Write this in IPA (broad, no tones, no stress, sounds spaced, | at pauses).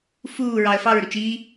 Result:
f uː ɹ ɑ ə̯ f ɑ ɹ ɾ u t͡ʃ i